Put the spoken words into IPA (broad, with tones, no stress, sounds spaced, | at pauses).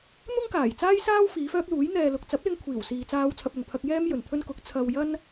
n̪ ʊ˥ ŋ k aː˨˩ j t͡s aː˥ j s aː˥ w f iː˨˧ f œː˥ k̚ l uː˨˥ j n̪ ɛː˨ l ʊ˨ k̚ t͡s ɐ˨˥ p̚ l ɪ˧ ŋ kʷʰ iː˨˩ w s iː˨ t͡s aː˧ w t͡sʰ ɐ˧ p̚ ɵ˨ n pʰ ɐ˧ k̚ j ɛː˥ m j ɵ˨ n t̪ʰ ɵ˥ n k ʊ˨˥ k̚ t͡sʰ ɐ˧ w j ɐ˥ n